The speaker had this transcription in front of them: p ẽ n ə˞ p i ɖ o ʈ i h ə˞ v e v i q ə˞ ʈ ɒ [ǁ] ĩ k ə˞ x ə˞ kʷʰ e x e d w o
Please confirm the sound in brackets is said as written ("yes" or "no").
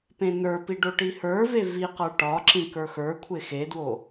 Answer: yes